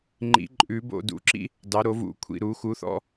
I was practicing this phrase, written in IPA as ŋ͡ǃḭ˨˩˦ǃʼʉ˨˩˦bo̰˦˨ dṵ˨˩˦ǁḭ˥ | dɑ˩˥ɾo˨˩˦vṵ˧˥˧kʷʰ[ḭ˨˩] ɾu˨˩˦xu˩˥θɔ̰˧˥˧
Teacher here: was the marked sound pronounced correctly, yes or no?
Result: no